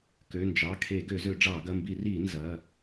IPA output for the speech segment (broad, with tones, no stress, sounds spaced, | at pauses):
k ø˩˧˩ n d͡ʒ ɑ˩˧˩ kʰ e˧˩˧ ɡ ø˧˩˧ z ø˧˩˧ ɖ͡ʐ ɑ˧˩˧ ɡ ɐ˩˧˩ m b i˧˩˧ r i˧˩˧ n z ɐ˩˧˩